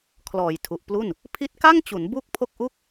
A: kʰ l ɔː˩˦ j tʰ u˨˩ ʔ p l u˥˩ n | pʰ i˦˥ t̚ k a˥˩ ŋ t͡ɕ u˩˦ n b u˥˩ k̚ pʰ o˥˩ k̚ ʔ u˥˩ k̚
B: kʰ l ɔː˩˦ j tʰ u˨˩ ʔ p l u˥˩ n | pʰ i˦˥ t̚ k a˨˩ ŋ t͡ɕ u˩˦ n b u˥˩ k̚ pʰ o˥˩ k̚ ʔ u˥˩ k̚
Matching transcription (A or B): A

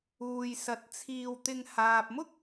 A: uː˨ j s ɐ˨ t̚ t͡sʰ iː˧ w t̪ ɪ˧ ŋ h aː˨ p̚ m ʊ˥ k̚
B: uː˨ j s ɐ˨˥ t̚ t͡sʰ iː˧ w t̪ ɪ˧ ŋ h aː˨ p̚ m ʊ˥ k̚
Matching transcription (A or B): A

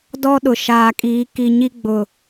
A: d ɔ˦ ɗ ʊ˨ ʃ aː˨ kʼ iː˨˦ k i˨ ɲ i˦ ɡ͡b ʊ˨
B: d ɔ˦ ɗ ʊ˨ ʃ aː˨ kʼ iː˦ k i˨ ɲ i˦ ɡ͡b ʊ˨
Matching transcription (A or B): A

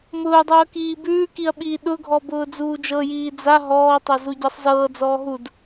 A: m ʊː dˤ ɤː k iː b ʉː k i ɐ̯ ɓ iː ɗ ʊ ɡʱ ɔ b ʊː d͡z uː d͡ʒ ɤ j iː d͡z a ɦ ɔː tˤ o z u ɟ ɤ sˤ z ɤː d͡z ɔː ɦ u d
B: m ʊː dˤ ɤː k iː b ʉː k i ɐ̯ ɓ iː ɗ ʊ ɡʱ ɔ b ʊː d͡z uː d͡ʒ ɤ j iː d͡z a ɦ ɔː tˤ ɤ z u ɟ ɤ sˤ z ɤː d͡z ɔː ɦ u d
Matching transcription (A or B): B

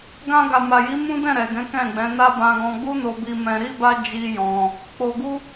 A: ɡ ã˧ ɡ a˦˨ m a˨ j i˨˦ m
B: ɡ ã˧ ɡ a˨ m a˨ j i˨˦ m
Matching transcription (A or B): B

